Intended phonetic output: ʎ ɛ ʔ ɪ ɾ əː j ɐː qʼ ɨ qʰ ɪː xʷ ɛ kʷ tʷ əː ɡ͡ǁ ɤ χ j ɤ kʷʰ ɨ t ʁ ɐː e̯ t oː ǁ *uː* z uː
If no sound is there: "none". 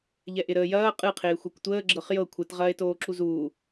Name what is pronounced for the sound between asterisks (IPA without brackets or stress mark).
u